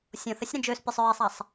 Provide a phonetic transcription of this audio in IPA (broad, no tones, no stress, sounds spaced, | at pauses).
sʲ õ θ ə sʲ ɾ ə̃ d͡ʒ ø s pʲ o sˤ ɹ e sˤ a sˤ